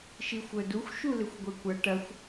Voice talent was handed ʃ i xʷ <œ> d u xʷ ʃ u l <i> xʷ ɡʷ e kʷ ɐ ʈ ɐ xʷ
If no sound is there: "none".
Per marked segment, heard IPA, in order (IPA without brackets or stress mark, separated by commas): œ, ɪ